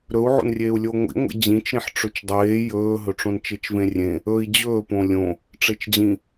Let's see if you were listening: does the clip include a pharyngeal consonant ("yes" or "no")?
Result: yes